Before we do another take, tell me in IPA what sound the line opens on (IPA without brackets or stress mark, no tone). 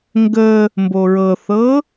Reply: ŋ